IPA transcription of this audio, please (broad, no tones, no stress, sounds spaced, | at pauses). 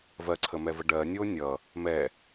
v ɜ ǀʰ ə m ɛ v ə ɖ ɜ nʲ o nʲ ʌ | m ɛ